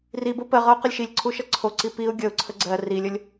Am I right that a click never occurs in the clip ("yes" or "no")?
no